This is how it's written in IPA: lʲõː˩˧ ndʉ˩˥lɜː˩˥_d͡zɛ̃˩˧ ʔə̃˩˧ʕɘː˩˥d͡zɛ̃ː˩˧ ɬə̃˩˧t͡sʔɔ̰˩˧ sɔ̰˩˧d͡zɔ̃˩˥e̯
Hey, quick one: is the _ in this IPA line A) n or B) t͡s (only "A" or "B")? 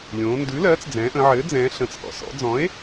B